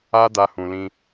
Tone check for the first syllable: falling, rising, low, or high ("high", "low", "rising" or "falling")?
high